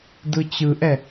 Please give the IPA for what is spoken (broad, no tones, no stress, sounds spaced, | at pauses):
d ɯ t͡ɕ ɯ ʔ ɛ